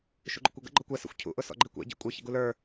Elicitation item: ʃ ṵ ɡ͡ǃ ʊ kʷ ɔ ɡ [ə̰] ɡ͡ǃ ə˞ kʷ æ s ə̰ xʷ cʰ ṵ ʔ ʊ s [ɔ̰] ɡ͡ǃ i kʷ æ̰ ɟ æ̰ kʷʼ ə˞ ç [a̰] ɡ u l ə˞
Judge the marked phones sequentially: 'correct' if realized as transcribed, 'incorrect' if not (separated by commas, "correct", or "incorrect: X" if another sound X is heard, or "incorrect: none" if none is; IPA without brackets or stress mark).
correct, correct, incorrect: ə̰